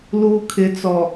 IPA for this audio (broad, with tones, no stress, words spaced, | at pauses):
luː˨ kʰɪ˨t͡sɔ˨